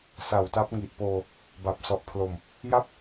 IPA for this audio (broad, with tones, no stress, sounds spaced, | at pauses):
s a˨˩ w t a˦˥ p̚ ŋ i˨˩ ʔ p oː˧ | b a˨˩ p̚ s ɔ˨˩ ʔ pʰ l o˨˩ m | j a˥˩ p̚